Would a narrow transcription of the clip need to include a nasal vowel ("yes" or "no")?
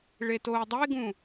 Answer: yes